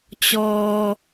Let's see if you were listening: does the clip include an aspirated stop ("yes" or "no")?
no